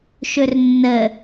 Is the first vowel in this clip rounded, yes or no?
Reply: yes